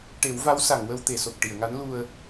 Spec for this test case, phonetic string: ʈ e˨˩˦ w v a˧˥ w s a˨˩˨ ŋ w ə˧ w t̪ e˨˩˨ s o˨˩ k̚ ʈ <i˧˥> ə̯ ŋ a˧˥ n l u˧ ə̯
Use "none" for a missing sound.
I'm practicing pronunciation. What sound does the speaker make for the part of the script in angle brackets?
i˨˩˨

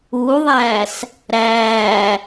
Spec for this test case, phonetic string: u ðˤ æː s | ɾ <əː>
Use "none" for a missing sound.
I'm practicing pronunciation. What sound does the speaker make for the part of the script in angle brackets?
æː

